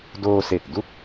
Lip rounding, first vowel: rounded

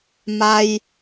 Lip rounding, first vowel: unrounded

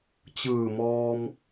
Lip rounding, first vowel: unrounded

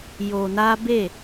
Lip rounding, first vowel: rounded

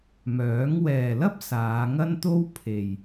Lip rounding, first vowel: rounded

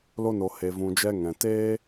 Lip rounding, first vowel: rounded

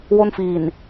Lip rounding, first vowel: rounded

